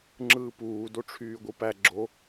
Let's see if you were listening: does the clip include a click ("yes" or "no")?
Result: yes